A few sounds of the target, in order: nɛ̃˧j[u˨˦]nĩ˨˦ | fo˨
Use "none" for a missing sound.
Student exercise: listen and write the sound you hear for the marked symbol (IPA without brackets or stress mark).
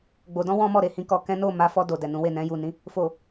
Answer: u˨